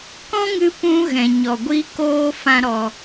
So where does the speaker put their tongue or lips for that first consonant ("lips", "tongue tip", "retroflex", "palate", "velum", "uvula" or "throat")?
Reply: velum